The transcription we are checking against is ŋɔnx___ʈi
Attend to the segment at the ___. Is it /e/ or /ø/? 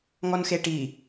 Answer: e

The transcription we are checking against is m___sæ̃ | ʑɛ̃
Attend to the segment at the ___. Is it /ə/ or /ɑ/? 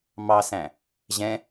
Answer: ɑ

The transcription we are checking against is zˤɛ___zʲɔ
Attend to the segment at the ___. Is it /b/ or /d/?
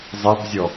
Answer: b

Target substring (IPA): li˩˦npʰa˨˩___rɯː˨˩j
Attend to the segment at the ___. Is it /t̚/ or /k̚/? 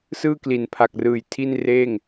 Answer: k̚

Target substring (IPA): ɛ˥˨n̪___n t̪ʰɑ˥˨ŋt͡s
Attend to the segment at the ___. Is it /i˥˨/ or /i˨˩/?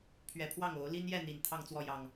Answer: i˨˩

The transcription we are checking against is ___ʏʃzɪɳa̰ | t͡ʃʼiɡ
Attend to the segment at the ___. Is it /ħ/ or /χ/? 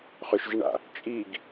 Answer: χ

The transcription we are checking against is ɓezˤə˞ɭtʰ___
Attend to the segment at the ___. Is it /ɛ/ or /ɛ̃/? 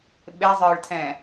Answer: ɛ̃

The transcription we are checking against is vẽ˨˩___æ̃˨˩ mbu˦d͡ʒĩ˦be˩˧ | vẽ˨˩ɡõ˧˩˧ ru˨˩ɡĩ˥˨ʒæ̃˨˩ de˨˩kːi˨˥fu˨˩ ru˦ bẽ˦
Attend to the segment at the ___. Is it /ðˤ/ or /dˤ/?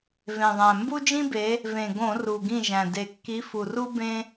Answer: ðˤ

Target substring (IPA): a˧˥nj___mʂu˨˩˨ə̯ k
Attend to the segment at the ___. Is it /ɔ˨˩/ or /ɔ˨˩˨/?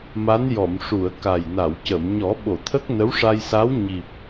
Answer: ɔ˨˩˨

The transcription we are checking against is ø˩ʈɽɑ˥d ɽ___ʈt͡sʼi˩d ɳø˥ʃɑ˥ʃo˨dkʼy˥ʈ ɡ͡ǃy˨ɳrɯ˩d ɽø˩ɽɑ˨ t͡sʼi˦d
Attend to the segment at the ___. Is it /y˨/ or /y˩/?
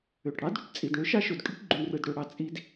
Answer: y˨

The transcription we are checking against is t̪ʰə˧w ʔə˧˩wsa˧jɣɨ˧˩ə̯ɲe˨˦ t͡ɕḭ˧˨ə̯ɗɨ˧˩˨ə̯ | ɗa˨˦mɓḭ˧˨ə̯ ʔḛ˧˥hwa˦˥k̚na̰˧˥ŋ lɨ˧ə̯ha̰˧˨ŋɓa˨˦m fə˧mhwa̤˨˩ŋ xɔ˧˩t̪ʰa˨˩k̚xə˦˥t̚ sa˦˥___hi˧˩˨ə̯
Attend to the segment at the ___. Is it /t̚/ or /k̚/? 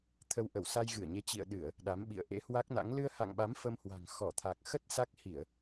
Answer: k̚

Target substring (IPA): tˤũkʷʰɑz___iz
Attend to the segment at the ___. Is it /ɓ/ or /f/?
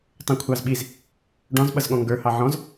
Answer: ɓ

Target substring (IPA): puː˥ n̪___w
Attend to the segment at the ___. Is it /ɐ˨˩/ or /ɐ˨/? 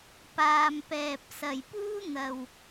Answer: ɐ˨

